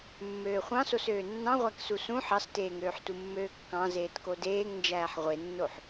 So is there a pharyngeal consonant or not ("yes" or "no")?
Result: yes